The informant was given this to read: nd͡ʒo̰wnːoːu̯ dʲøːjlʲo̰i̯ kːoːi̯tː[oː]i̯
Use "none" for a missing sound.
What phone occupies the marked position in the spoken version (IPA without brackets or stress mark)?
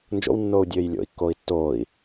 oː